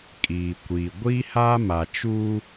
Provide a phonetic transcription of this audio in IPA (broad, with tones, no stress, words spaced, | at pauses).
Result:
kʼiː˨kʷiː˨ ɡʷi˦haː˦ma˨ t͡ʃuː˦